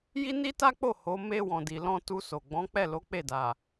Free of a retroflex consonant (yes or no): yes